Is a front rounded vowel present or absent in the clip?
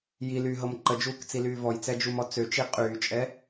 present